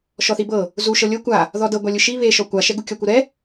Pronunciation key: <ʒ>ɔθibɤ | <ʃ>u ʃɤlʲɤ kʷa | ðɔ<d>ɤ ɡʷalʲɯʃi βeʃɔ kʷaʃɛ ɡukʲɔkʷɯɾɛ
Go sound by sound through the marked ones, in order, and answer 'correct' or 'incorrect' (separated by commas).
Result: incorrect, incorrect, correct